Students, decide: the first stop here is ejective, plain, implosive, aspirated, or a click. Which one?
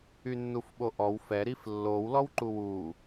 implosive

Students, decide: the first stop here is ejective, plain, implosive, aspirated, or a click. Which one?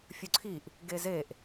click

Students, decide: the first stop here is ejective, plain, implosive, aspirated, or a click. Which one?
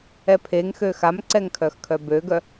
aspirated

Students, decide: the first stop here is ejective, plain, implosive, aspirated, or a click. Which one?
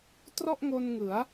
plain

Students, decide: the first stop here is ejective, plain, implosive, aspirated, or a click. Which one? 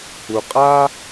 ejective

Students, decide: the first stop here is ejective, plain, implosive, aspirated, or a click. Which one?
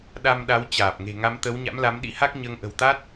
implosive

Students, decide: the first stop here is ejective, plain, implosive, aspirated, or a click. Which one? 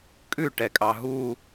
ejective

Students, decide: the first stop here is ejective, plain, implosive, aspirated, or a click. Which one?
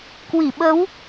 plain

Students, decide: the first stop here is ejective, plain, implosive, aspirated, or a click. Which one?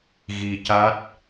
plain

